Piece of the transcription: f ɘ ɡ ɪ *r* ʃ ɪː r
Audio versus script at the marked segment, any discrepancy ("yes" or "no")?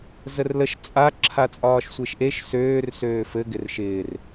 no